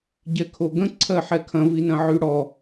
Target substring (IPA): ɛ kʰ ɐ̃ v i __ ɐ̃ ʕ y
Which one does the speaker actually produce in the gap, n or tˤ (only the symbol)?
n